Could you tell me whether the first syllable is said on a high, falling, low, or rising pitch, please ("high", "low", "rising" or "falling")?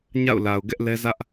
falling